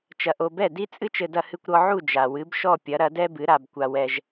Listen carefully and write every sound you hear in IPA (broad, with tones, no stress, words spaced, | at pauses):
t͡ʃɐ˧ʔo˧ bɛ˥˩di˥t͡sʼɨ˥t͡ʃɘ˧ dɐ˧hɨ˧kʷɾɔ˧ ʕu˥˩d͡ʒa˩wɨ˩˥b ʃɔ˥˩pʲɐ˩˥ ɾɐ˩˥dɛ˥bɨ˩˥ ɾa˩bkʷa˩wɛ˩ʒ